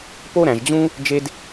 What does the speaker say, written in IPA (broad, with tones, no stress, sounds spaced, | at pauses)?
p o˥ ɾ æ̃˩ ʒ d͡ʑ ũ˥ | d͡ʒ e˥ d